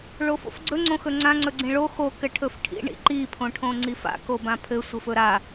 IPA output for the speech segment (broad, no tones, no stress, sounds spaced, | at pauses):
ɭ o f o̰ f ɡ͡ǀ ɵ ŋ͡ǀ õ x ɵ ŋ͡ǀ ã ŋ͡ǀ ɵ ɡ͡ǀ ĩ ɭ o x o k ɘ ʈʰ ɵ f ʈʰ ḭ ɳ ḭ ǃ i pʰ õ ʈʰ õ ŋ͡ǀ i f a̰ k o b ã pʰ ɘ sʷ ɘ f ɵ ɾ a